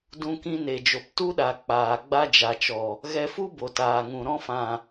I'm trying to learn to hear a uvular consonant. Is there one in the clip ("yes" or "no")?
no